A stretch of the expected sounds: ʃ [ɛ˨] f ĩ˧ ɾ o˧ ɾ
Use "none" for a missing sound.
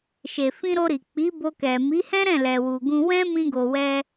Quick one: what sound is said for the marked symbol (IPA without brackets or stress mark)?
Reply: e˨